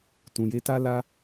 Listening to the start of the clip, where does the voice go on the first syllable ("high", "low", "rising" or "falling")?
low